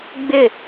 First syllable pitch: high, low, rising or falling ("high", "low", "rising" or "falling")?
falling